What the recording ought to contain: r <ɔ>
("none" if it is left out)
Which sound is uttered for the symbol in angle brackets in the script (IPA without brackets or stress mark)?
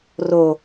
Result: o